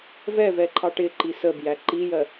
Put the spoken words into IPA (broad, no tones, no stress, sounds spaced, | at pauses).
v ɛ v ɛ ǃʰ ɑ ʈ ɪ ǃ i s ə b j æ ǃ i j ɜ